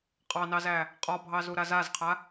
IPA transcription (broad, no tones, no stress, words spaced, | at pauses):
qʼɑnɑzæ | qʼɒbʱɑzuɾa zazqʰa